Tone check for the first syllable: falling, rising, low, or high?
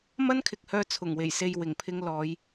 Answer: high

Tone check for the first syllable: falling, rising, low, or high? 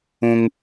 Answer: high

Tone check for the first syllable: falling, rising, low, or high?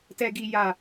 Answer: low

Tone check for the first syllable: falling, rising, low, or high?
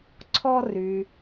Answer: high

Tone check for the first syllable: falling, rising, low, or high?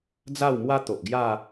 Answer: falling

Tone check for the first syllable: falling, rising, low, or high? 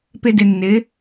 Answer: high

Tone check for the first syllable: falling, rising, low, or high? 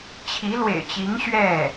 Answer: rising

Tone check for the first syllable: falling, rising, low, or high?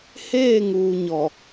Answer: falling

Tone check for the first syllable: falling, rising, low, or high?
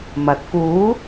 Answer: rising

